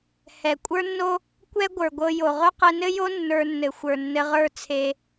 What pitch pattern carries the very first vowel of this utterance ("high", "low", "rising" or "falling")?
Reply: low